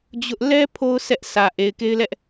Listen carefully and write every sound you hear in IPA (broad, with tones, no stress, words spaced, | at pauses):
d͡ʑʊ˦ʔ lɛ˦ pʰo˦ʊ̯ sɛ˦ʔsä˨ ʔe˨ɪ̯ke˦ɪ̯lɛ˦ʔ